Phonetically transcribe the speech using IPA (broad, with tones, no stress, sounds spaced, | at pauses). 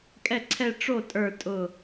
kʼ ɛ˥˩ ǀʰ ɛ˥˧ ʈ͡ʂ o˥˩ tʼ ə˞˧˩ tʼ ʊ˧˩